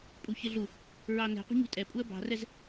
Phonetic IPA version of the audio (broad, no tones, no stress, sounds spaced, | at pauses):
pʼ u ç ɪ ɮ u | ɹ ɑ n ɛ̤ qʷ ɑ̤ ɲ ṳ tʼ ɛ pʼ u ə̯ b ɑ̤ r ɛ z